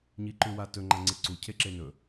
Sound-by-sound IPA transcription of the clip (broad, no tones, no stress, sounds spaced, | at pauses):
ɲ i ǃ ʉ w a t ɵ ŋ͡ǃ a ŋ͡ǀ e ǀ u cʰ e ǁ e n ɵ